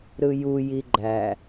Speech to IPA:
ɾɯju jiɡ͡ǃæ

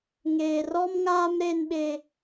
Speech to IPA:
ŋeː˨rɔ˦mŋaː˦m ɾe˦nɓe˦

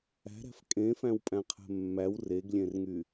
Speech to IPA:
æ̤ɾæ̤f kʼẽfæ̃wpʼæ̃qʰɛ̤ mːæw reɡlʲẽrŋy

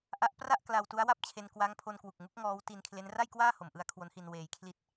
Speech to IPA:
ʔa˦˥ʔpra˥˩ʔ kla˧wtu˦˥a̯wa˥˩p̚t͡ɕʰe˧n kwa˦˥ŋpʰo˧nkwu˨˩k̚ŋu˦˥k̚ ŋɔː˦˥w ti˧nkʰle˦˥n ra˥˩jkwaː˥˩ho˩˦m ʔɯ˧a̯kʰwo˦˥nhi˧n weː˧jkʰli˥˩t̚

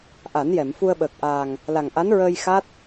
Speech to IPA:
ʔa˨˩˦njɛ˨˩˨m fu˧ə̯ɓəː˨˩k̚ʔaː˨˩ŋ | la˨˩ŋ ʔa˧˥nɹəː˧j xa˦˥t̚

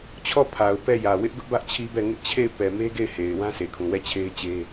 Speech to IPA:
t͡ɕʰɔ˦˨pʰa˨ʊ̯ pɛ˦˨ jä˨ wɪ˦ʔɡʊ˦ʔbä˦ʔ t͡ɕʰi˦bɛ˦˨ ŋɪ˦ʔt͡ɕʰe˦˨ɪ̯ pɛ˨me˦ ɡe˦˨ɪ̯he˨ɪ̯ wã˦se˨kʰũ˨ wɛ˦˨t͡ɕʰe˦ɪ̯t͡ɕe˦

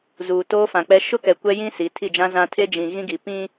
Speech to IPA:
zuː˨toː˦fã˨k͡pɛ˦ ʃʊ˦kɛ˨ kʷɛ˦jĩ˦ si˨˦tʰi˦˨d͡ʒã˦ zã˦ tʰe˦d͡ʒĩ˨ ɣĩ˦ɡi˨ pĩ˦

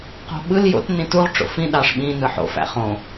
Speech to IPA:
qo̤ɓɯl jo̰t nĩtuʁ ʈ͡ʂo̰fĩ ɗɑʂɓĩ nɯħo̰ fæ̰χõ

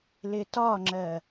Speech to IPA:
lɪtɒŋ͡ǁɜ

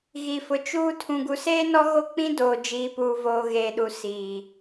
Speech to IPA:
ɣi˨fʊ˨t͡ʃuː˦ tʰũ˨ɡu˨seː˦nɔ˦ ɣo˦k͡pĩ˦ doː˨d͡ʒiː˨puː˨voː˨ ɣe˨ɗu˨ si˨

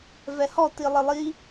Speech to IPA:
vɛhɔ tilˠɪlˠi

